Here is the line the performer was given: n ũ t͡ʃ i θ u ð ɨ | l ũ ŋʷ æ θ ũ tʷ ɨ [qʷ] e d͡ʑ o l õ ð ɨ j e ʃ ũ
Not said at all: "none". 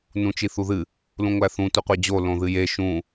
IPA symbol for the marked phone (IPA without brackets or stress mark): qʷ